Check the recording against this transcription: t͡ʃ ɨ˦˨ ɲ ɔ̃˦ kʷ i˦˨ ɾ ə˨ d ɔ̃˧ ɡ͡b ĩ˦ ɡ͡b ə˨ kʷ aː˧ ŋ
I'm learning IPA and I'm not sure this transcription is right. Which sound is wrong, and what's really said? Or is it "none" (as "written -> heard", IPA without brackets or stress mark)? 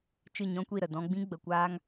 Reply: none